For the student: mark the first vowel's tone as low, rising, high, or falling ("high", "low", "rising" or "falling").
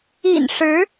low